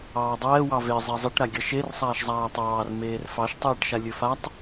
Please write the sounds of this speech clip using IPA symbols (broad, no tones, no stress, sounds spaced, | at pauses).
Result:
ɑː dˤ ɛː w ɑ v e zˤ ɛ zˤ e ʈ ɾ a ɡʲ ʌ ʃ e r sˤ aː ʃ zˤ aː tˤ ɑː r m eː r f ɑ ʃ tˤ ɛː ʈ ʃ a lʲ ɵ f a tˤ